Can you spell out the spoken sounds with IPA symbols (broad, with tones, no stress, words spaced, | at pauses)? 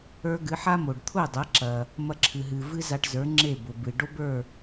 ə˞˧ ɡɨ˩˥ħa˥mo˩ɖ t̪ʰʊ˥˩dˤɐ˩˥ǁɐ˩ | mɐ˥˩ǁʰɨ˩ɦɨ˩ vɨ˥za˧ʈzə˞˩˥ŋ͡ǁe˥˩ bʊ˩bɨ˩ ɖo˥bə˞˥˩